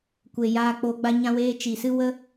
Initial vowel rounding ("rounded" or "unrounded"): unrounded